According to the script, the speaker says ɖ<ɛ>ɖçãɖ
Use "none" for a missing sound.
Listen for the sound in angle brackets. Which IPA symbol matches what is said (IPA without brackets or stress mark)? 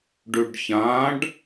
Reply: ø